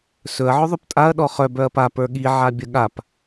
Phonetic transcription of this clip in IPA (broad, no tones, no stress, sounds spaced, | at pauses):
s ɵ ɐ̯ ʕ ɵ ðˤ ɵ p tʼ a ɐ̯ ɗ ɔ χ œ b œ ɐ̯ p a p ə˞ ɠ i ʕ a bʲ ə ɠ a p